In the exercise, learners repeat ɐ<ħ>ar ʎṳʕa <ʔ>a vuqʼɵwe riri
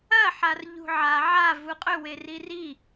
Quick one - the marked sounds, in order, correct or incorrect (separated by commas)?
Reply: correct, incorrect